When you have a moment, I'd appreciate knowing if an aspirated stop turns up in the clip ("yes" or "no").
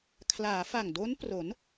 yes